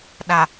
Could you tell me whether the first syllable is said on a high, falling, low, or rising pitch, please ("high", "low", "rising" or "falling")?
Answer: low